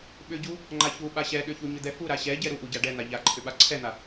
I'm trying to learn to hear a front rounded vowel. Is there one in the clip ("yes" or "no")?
yes